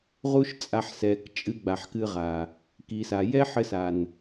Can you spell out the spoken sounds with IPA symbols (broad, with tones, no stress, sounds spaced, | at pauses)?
ʁ u˦ ʃ t͡sʼ a˧ ħ s ɛ˨ k t͡ʃʼ ɨ˧ ɡ͡b a˨ ħ k ɨ˧ ʁ a˨ | k i˨ s a˨ j ɛ˦ ħ ɘ˧ s a˨ n